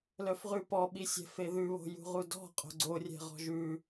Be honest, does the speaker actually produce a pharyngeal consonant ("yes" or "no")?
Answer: no